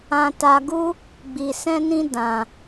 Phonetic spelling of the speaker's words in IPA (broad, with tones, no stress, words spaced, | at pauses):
ã˧ta˧ɡu˦ | ɡ͡bi˧sɛ̃˦nĩ˦ dã˧